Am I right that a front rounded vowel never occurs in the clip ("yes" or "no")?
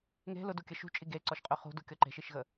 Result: no